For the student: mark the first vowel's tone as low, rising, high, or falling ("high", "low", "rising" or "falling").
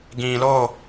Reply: low